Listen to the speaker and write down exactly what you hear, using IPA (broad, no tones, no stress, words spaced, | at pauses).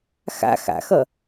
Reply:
xa̰ xa̰xʌ